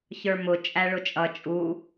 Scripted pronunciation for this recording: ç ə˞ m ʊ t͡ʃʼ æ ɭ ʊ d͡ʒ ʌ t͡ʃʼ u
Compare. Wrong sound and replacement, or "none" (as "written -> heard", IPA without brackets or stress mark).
d͡ʒ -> t͡ʃʼ